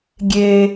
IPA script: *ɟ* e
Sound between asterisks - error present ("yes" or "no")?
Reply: yes